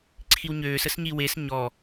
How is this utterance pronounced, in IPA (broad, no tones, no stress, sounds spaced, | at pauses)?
ǀʰ i w ɲ øː s ə s ɲ i w e s ɲ ɔ